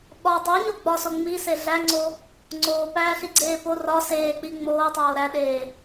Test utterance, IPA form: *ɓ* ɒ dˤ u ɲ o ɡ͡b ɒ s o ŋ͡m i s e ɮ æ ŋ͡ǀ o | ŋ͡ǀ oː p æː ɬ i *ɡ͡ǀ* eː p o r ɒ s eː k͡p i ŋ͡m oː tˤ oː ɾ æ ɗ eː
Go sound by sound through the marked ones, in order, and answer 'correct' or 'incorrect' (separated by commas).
correct, correct